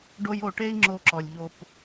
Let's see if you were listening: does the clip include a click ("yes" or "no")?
yes